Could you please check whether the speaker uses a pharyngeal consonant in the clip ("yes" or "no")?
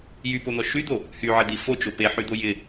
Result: yes